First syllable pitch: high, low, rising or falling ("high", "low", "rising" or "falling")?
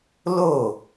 falling